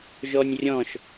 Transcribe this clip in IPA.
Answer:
ʒ ɔ nʲ rʲ ɔ̃ ʃ

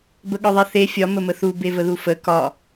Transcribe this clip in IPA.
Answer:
b ə ɠ ɒ ðˤ i θ e fʲ ɒ m ə m ə θ u b e v ə ð u f ə k ɒ

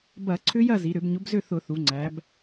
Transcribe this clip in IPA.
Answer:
b ɐ˧˩˧ ǀʰ ʏ˦˥ j ɐ˥˨ z i˩˧ ɾ ʏ˧˩˧ b ɲ ʊ˨˥ b z ʏ˥˨ θ ʊ˧˩˧ θ u˩˧ ŋ͡ǀ æ˩˧ b

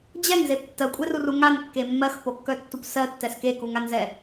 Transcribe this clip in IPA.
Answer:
d͡ʑ ɛ ŋ z e p tː ɜ kʷʼ e r u r u ŋ a n kː e mː ɜ x p o kː œ tː u p s ɜ tː ɛ s k e k u ŋ a n z ɛ

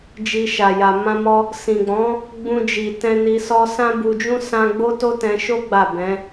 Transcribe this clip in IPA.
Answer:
d͡ʒ i˧ ʃ a˨ j a˨ m ã˧ m ɔ˧ | s ĩ˨ ɡ͡b ɔ̃˨˦ | ɡ͡b ũ˧ d͡ʒ i˨ t ɛ̃˧ n i˧ s ɔ˦ s ã˦ b u˧ d͡ʒ ũ˦ s ã˦ ɡ͡b o˦ t o˦ t ɛ̃˧ ʃ o˦ ɡ͡b a˦˨ b ɛ̃˨˦

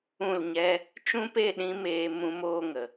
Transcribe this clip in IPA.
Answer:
ũ˦˨ l ɲ ɛ˦ | t͡ʃ ũ˦ p e˦˨ ɗ ĩ˧ m eː˧ m ũ˧ m oː˦ ŋ ə˨

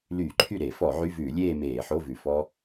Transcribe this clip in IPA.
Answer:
l yː˧˩˧ ǃʰ y˥˩ ɾ e˧˩˧ f ɔ˧˩˧ ʕ y˧˥˧ v ʉː˧˩˧ lʲ eː˥˧ m eː˧˩˧ ħ o˧˥˧ v ʉ˨˩ f ɔ˥

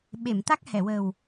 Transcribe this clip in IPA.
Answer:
ɓ e˨˩˨ m t̪ a˦˥ k̚ h ɛ˨˩˨ w ə˨˩ w

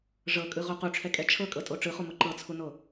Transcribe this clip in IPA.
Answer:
ʐ ɤ kʼ ɯ ʁ o q u ʈ͡ʂʰ ɛ kʼ ɛ t͡ʃʰ ɤ kʼ ɤ tʼ o ʈ͡ʂ ɯ χ u m o ǃ ɤ t͡sʰ u n o

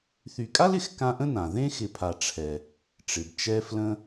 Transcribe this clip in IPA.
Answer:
θ y˨ kʼ a˥ l ɪ˩ x k ã˦ ʔ ə̃˥ n ã˩ ð ẽ˥ x ɪ˨ pʰ a˨ ʈ͡ʂʰ ɛ˨ | ʈ͡ʂ ɪ˩ b t͡ʃ ɛ˥ f l ə̃˦

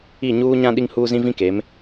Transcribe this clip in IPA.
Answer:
i˦˨ ɲ uː˦ ɲ ã˦ ɗ i˦ ŋ h uː˦ z ĩ˦ v ĩ˦ k e˨˦ m

